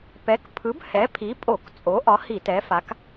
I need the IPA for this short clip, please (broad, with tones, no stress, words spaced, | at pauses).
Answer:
pɛ˨˥kpʰɯ˨˥b hɛ˨˥pʰi˨˥pʼo˧˩˧k t͡sʼo˨˥ʔɒ˨˥ hi˧˩˧tɛ˨˥fa˨˥k